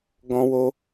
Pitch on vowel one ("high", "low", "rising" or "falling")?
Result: high